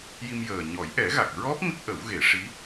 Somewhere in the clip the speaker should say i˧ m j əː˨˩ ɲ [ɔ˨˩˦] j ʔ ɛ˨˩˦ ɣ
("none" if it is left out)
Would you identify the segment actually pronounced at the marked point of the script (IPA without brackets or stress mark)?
ɔ˨˩˦